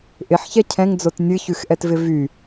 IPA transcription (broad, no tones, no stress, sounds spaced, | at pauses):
ʔ ɪ ħ ç ɛ cʰ ɛ̃ ŋ d͡z o t nʲ ɨ ç ʉ x ʔ ɛ t v ɪ v y